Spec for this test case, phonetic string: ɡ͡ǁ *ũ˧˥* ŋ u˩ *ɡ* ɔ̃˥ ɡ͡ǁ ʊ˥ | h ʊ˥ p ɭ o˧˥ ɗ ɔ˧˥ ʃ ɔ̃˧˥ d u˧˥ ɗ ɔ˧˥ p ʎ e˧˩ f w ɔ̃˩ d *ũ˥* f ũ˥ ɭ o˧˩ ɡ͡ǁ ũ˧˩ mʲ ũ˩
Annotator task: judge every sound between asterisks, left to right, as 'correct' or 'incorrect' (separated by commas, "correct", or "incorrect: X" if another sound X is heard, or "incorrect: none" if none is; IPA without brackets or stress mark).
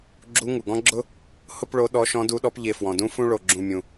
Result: incorrect: u˧˥, correct, correct